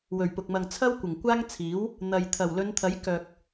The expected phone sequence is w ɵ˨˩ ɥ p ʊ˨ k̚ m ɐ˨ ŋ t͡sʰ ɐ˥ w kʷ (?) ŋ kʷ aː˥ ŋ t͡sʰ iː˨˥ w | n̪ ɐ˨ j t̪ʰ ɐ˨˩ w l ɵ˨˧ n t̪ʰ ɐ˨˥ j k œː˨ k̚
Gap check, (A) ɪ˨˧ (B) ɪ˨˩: B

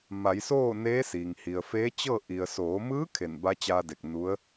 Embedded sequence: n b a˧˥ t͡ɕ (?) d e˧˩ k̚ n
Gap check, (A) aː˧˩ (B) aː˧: B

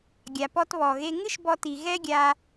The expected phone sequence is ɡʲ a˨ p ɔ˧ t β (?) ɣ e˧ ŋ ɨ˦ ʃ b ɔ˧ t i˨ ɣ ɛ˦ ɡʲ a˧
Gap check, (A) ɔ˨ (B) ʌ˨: A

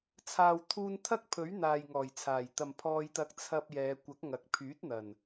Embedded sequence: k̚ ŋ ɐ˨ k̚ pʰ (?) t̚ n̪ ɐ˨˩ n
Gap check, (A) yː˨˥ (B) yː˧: A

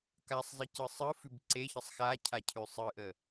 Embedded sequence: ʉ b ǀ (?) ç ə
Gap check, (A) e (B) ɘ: A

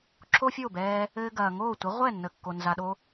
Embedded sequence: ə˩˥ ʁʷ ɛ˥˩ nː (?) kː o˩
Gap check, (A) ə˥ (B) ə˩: B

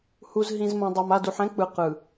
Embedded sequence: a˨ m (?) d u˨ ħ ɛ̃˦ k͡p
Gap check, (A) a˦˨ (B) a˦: A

